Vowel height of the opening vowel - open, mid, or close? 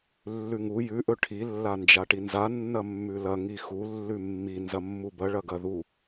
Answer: close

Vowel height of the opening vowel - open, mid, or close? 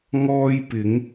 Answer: mid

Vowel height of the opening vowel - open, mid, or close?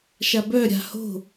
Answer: open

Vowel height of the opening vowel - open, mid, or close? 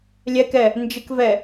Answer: mid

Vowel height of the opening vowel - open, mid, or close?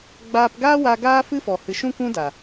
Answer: open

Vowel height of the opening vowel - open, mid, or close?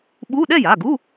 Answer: close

